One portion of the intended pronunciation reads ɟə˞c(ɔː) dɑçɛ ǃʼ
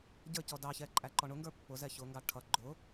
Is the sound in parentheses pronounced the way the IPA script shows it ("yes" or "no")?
no